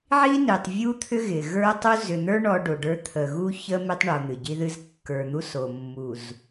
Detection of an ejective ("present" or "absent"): absent